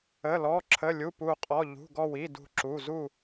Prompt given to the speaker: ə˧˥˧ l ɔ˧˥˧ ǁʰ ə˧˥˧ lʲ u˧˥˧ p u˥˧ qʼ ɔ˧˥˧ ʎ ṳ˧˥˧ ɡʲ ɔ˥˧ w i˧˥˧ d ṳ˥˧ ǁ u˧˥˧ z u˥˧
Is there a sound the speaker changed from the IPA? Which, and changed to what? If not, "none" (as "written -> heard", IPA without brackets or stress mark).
ɡʲ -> ɡ